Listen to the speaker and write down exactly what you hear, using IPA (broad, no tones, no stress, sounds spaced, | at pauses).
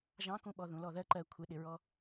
ʒ ɑ̃ k ũ ɓ ɔ ð ũ l ɔ ð ɜ ǃ ɜ kʷʰ ɪ ɗ ɪ ɹ ɔ